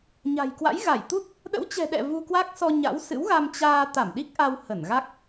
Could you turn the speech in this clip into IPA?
ɲa̤˨˩jkwa̰˧˥jɣa˧˩j t̪u˦˥t̚ | ɗə̰˧˥wt͡ɕɛ̤˨˩ɗɛ̰˧˨ vu˧kwa˦˥k̚ sɔ˧ɲa̰˧˥wsɨ̰˧˥w ɣa˧mt͡ɕaː˧ t̪a˧˩m ɗi˦˥k̚ʔa˧w hə˧˩nɣa˦˥k̚

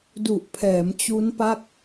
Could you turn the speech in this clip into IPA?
du˨˩ʔpʰɛː˩˦m t͡ɕu˦˥npa˥˩k̚

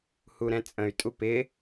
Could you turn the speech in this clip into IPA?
huɾɛ̃t͡sʼə̃y̯ tʼupɪ

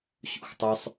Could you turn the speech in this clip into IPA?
ɕṵxtˤɵsˤ

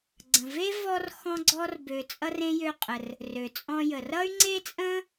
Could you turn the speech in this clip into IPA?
ɡ͡ǀə̃˨ ve˥vɔ˦r xɔ̃˦ɡ͡ǀɔ˦r bø˨t͡sʼʌ˥r ẽ˥jø˦qʼə˩r | rø˩t͡sʼɔ̃˦jə˩ rʌ˥y̯ŋ͡ǀe˥t͡sʼə̃˥

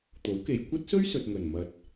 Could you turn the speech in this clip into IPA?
t̪o˨˥wke˨j kʷɐ˥t̚sɵ˥ɥsɵ˨t̚ ŋɵ˨˩nmɐ˨t̚

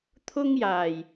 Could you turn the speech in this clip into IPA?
t̪ʰʊ˥ŋjaː˨˩j

